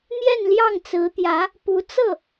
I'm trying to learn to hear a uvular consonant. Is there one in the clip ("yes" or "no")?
no